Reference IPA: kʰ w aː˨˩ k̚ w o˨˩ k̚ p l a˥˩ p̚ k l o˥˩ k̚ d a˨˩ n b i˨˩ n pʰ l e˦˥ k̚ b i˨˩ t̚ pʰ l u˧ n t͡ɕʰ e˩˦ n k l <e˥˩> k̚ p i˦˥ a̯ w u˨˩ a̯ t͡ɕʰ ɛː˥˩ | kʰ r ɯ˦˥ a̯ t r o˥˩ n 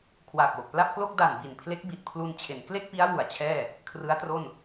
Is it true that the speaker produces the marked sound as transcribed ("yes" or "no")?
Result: yes